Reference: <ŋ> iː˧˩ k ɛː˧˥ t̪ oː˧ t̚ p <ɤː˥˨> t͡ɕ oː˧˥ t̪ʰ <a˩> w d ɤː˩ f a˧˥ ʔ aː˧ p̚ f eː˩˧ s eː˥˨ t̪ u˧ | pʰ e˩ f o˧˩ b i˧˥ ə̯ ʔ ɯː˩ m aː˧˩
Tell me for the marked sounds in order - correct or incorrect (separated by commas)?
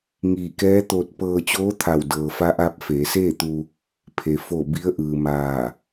correct, incorrect, incorrect